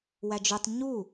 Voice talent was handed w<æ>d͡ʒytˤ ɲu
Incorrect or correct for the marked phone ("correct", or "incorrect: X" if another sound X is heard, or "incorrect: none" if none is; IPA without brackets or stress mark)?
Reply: correct